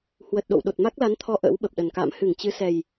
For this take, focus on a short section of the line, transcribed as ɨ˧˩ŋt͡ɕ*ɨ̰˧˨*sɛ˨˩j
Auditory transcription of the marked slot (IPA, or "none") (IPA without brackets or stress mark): ɨ˨˦